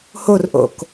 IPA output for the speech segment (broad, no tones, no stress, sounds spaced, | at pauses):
h o r ʔ o̰ k